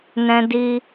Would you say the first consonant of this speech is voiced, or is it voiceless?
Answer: voiced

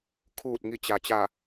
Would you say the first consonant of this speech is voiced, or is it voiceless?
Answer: voiceless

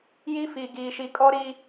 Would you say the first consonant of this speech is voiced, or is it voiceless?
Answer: voiced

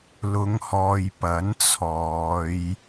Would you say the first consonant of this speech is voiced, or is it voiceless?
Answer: voiced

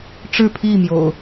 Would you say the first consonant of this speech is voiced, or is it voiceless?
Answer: voiceless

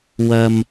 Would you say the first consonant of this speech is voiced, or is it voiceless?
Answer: voiced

